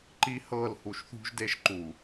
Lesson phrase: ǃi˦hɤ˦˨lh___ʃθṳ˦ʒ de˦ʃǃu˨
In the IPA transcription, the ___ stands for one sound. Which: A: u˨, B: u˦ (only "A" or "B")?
A